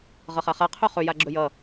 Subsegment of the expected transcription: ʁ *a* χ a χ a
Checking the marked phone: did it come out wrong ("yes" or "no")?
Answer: yes